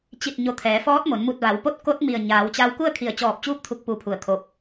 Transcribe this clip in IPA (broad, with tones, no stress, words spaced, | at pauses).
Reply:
t͡ɕi˧˩t̚ ɲo˧˩ t̪ʰɛː˩˧fɔː˧˥t̚mo˩˧n mu˧˩t̚ʋa˩˧wpo˧˥t̚ ko˧˥t̚ mi˧˩ə̯ ɲaː˩˧wt͡ɕa˧w ku˥˨ə̯kʰi˧˩ə̯t͡ɕɔː˧˩p̚t͡ɕuː˧˥p̚ t̪ʰu˧˥k̚pu˧pʰu˧˩ə̯kʰo˧p̚